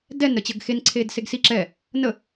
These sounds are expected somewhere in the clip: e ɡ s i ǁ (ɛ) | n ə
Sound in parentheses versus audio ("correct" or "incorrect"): correct